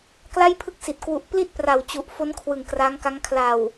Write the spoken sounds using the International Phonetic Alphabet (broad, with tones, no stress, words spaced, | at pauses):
kla˥˩jpʰɯ˥˩k̚si˨˩t̚ kwu˨˩ʔpli˥˩t̚ pra˨˩wt͡ɕu˨˩ʔ fo˦˥nkʰwɯ˨˩ŋ kra˦˥ŋka˦˥ŋ kʰla˨˩w